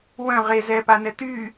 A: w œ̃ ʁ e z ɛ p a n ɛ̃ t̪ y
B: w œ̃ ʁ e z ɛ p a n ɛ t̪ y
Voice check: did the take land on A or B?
B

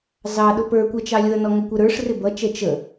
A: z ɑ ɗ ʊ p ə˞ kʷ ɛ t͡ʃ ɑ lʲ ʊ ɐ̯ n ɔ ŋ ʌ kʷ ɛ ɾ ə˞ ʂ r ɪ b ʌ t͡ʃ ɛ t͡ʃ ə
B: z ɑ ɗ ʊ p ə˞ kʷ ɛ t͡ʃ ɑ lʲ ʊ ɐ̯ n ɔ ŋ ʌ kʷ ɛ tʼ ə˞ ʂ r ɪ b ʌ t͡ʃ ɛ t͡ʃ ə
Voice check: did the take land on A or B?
A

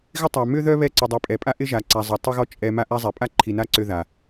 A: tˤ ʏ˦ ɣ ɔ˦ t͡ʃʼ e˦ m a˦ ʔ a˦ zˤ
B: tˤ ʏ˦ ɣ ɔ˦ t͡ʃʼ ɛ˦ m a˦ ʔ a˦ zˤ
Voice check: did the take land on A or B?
B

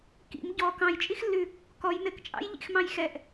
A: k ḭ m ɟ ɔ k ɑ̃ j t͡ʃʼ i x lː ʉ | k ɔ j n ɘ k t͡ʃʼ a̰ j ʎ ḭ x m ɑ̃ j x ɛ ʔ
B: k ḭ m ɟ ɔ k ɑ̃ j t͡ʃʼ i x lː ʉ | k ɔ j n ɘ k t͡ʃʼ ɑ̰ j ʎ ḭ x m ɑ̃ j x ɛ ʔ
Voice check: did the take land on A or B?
B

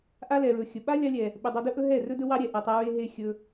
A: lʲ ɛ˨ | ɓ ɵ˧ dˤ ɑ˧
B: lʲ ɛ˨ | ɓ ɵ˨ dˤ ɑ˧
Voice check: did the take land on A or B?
B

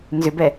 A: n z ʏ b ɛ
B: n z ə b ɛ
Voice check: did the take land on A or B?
A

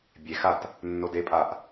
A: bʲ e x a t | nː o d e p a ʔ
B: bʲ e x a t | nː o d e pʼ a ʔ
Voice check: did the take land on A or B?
B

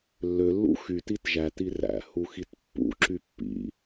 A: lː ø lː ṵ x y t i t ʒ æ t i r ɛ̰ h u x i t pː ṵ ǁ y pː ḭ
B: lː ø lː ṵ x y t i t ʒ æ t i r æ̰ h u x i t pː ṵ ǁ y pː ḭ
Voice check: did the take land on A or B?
B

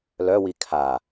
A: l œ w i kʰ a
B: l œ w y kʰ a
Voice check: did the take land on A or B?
A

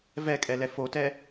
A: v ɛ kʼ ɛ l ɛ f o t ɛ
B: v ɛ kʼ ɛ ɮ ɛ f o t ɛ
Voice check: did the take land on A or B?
A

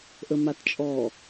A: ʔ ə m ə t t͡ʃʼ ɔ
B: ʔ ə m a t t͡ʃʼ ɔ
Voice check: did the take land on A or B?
B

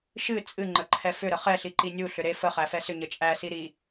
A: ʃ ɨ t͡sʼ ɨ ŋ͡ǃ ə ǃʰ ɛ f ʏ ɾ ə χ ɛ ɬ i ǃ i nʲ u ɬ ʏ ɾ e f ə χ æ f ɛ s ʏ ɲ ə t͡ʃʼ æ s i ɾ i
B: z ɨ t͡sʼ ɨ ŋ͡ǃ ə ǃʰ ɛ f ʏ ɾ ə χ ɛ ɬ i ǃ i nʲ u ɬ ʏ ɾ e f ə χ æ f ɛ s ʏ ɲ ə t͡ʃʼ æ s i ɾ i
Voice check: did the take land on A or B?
A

